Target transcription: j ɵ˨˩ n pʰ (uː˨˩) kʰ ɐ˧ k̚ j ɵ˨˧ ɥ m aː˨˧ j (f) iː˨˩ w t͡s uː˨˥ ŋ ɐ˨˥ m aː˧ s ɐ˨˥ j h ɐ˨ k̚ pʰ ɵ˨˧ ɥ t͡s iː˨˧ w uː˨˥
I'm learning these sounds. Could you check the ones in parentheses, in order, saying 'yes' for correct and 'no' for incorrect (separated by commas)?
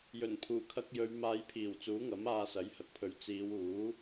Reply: yes, no